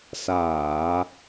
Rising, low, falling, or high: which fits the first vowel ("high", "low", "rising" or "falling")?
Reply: low